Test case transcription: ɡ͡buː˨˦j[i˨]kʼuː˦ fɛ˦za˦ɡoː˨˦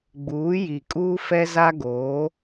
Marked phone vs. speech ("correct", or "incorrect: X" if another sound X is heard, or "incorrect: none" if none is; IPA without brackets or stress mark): correct